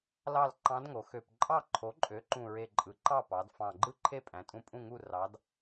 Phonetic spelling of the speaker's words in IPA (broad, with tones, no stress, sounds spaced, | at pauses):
l ɑ˥˨ l ǃ ɑ̃˧˥ d ŋ o˩˧ x ø˨˩ p ǃʼ ɑ˥˨ ǃʰ o˩˥ ǃʼ ø˩˥ ǃ ũ˨˩ ɹ e˨˩ ǃʼ ɯ˩˥ ǃ ɑ˥˨ p ɑ˩˧ d f ɑ̃˨˩ ɡ͡ǃ ɯ˥˨ ǃʰ e˥˨ pʼ æ̃˩˧ tʼ ũ˧˥ pʼ ũ˥˨ ŋ u˥˨ r ɑ˧˥ d